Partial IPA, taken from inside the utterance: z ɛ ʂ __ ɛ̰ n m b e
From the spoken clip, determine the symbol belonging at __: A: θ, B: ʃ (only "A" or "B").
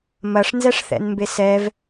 A